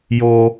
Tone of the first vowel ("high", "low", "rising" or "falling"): high